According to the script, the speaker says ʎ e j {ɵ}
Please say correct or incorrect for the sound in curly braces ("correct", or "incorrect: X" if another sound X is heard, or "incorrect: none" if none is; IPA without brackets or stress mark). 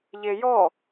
incorrect: ɔ